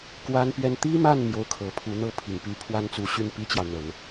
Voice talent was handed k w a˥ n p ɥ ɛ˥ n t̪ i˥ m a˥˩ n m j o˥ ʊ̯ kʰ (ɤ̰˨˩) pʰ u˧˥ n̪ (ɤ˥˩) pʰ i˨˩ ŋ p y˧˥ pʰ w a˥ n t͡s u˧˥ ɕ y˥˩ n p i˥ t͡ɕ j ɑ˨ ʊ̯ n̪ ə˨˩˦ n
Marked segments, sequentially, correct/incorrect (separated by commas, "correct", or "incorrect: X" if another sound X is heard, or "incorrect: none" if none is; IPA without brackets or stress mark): incorrect: ɤ˧˥, incorrect: ɤ˥